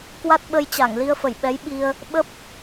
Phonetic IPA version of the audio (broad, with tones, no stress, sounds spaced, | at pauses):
k w a˦˥ t̚ ɓ ə˧ j t͡ɕ a˧˩ ŋ l i˧ ə̯ f ə˧˩ j ɓ ɛ˨˦ j ɓ i˧ ə̯ | ɓ ə˦˥ p̚